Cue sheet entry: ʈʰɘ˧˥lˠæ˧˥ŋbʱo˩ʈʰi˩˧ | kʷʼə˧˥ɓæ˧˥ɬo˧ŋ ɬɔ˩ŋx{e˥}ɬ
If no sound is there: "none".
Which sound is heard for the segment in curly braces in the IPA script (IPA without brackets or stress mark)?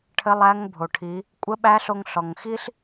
i˥